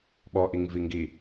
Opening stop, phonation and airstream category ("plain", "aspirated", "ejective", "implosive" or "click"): implosive